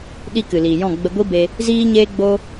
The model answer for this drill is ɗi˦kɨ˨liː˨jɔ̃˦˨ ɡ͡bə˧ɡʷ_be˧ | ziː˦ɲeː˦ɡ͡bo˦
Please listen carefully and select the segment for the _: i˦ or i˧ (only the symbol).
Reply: i˦